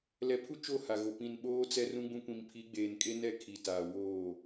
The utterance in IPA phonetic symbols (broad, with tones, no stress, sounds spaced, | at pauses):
l ɛ˨ pʰ u˦ t͡ʃ o˦˨ h a˨ ɣ o˨ p ĩ˨ n ɓ oː˦ t͡s ɛ˦ r ũ˦ ɡ͡b ũ˦ kʷ ĩ˨ m pʰ i˨˦ ɡ͡b eː˨ n kʼ e˦ n ɛ˦˨ kʰ i˨ t aː˨ w oː˦˨